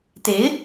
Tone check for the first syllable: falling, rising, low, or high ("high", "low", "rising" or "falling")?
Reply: rising